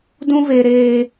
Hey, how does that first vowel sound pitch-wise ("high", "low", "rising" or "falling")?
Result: high